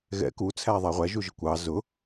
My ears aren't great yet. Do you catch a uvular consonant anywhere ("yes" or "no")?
yes